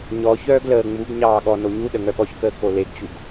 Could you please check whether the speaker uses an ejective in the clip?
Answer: no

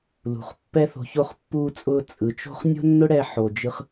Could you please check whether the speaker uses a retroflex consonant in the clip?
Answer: yes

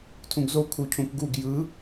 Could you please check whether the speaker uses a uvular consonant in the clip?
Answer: no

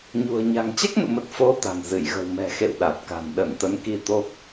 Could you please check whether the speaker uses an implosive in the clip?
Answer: yes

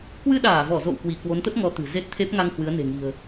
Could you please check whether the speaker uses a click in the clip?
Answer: no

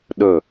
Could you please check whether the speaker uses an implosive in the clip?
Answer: yes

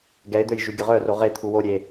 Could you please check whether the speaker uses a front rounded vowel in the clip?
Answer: yes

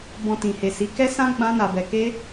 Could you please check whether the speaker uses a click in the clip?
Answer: no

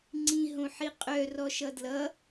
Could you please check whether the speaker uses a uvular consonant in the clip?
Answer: yes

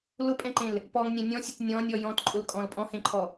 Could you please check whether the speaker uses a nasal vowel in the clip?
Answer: yes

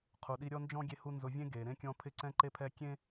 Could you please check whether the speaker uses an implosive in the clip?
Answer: yes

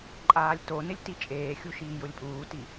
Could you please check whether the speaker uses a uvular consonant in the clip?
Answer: no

